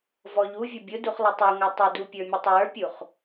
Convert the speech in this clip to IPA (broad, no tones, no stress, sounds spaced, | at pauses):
v ɔ ʎ u vʲ ʊ bʲ ʊ d u χ lˠ ə tˤ o ŋʷ ə˞ tˤ ə d u pʲ ə˞ mʲ ʊ tˤ w ə˞ pʲ u χ